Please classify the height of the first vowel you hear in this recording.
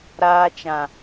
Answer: low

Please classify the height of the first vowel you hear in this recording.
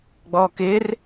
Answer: mid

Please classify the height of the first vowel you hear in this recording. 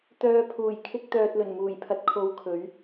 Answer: mid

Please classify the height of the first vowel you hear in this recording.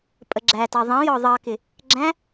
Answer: mid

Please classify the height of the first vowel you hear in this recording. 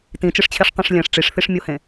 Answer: high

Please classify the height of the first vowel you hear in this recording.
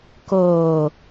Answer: mid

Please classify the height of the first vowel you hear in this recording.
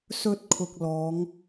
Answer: mid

